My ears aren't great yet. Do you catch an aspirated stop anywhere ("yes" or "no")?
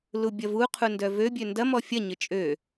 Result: yes